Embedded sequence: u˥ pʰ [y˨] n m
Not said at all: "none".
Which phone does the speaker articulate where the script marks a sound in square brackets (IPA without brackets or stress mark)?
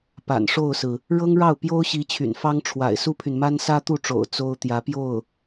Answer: y˨